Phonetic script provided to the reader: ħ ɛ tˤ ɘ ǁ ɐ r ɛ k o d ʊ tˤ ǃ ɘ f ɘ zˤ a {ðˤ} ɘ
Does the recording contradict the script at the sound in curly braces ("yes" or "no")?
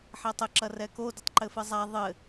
no